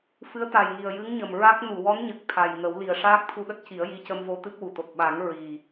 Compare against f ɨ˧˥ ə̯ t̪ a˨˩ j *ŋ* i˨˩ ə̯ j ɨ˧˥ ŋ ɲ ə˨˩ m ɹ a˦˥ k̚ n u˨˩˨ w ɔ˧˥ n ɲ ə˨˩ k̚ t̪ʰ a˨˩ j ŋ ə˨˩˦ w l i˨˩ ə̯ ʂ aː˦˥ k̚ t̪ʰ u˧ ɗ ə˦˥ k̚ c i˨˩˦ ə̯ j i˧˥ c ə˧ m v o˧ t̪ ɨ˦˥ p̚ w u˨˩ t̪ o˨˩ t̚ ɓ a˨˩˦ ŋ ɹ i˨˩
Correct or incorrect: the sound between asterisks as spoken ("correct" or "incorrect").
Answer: correct